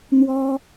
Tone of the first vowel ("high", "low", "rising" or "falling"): high